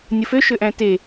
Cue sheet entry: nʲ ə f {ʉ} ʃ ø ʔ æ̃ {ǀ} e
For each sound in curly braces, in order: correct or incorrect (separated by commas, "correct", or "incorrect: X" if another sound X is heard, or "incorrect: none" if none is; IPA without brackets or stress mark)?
incorrect: ø, incorrect: t